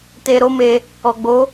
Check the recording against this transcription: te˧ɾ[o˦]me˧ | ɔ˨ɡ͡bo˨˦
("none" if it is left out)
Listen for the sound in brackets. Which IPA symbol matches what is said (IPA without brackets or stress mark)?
o˦